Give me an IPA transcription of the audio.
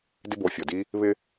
d ɪ˦ b o˨˦ fʲ o˨ d i˦ | β ɪ˧

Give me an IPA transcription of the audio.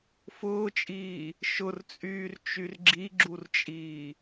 f ʊː t͡ʃʼ iː | ʃ ʊ r t͡sʼ yː r t͡ʃ y r ɡ͡ǁ i ɡ͡ǁ u r t͡ʃʼ iː

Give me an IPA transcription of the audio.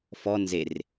f ɔ n z e r

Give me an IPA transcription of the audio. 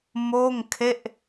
m oː˥˩ ŋ kʰ e˥˩ ʔ

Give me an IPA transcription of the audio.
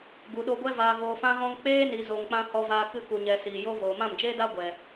ɡ u˨ ɗ o˧ ɡʷ ɛ˦ v aː˧ ɣ oː˧ f ã˦ ɣ ɔ̃˦ ŋ k͡p eː˦ n i˨ z o˨ ŋ k͡p ã˧ h ɔ˧ v aː˧ k ɨ˧ k u˨ ɲ ɛ˨ s iː˨ j o˧ v oː˨ m ã˦˨ m d͡ʒ eː˦ d a˦ ɡʷ ɛ˨

